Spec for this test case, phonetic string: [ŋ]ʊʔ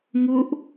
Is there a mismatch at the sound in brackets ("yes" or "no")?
no